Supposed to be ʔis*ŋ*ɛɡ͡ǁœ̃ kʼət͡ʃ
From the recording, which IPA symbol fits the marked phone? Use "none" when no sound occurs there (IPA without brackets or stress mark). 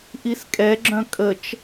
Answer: kʼ